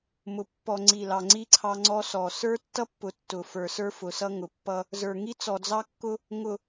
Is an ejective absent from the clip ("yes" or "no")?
yes